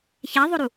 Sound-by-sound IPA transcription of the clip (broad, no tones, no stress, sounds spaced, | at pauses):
ç a ðˤ o ɾ u